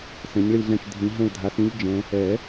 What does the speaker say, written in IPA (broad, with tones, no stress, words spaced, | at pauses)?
sɛ̃˨˦ɲɭi˦˨ɮɛ̃˦˨t͡ʃ dʱĩ˨˦ ɦɛ̃˦˨ɭdʱa˨˦s ĩ˦˥ʎd͡ʒɛ̃˨˦ | ɛ˨˩˦